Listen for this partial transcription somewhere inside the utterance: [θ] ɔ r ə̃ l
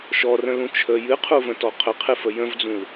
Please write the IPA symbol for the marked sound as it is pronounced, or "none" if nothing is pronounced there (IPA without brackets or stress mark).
ʃ